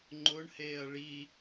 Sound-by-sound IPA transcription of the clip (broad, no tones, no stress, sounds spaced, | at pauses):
ŋ͡ǃ ʊ ɳ h eː ɐ̯ ɭ i